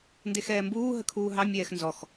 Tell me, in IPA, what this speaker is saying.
ndexɛːmbuː ɦəkʰuːɦɑ mʲɛːxnzɔx

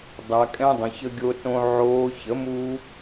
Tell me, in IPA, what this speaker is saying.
dˤa˧kʼɛ̃˦ dˤə̃˧çə˦ɡʲo˦ tõ˦ ʕoː˧ çə˨˦mu˦

